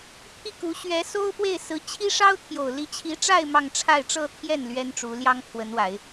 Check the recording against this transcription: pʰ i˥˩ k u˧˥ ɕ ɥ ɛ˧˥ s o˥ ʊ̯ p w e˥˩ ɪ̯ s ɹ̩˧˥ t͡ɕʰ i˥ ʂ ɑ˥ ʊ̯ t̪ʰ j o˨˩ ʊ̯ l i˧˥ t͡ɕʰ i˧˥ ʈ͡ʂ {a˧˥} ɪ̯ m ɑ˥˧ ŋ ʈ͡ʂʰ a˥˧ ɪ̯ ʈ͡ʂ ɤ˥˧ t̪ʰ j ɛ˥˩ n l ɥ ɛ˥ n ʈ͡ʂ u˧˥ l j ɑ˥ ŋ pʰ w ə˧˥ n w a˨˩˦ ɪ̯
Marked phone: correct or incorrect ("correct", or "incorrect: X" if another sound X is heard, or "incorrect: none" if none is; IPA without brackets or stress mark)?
incorrect: a˥˧